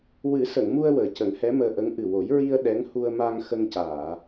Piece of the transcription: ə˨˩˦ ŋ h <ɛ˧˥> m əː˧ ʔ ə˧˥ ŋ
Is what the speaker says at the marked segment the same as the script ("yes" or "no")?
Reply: yes